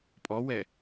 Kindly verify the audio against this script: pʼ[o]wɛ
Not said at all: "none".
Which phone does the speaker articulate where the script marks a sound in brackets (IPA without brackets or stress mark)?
ɔ